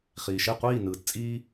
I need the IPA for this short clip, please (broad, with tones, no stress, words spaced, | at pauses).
χiː˩ʃe˥˩ qʷiː˥˩ nɯː˩tt͡sʼiː˧